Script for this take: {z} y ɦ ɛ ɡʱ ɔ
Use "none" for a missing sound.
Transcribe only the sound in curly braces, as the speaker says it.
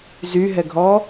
z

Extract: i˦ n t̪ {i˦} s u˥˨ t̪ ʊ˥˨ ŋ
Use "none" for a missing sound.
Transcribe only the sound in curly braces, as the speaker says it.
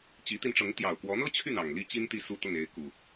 i˥˨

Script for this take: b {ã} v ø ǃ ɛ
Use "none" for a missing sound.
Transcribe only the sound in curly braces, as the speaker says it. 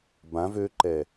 ã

